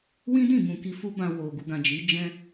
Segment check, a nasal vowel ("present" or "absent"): present